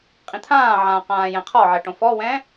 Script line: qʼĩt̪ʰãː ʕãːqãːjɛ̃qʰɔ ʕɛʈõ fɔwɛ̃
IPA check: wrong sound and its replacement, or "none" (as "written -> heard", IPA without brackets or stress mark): none